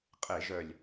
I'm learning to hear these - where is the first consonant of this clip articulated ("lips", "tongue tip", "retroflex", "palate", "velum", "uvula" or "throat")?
uvula